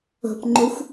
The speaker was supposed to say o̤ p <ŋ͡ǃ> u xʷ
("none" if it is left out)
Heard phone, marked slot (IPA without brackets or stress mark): ŋ͡ǃ